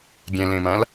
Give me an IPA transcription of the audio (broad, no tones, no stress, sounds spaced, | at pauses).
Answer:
ɡʲ ɛ̃ l ẽ m ã l